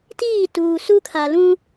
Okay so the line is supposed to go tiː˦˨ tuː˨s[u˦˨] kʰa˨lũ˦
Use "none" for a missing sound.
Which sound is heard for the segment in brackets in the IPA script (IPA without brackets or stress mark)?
u˦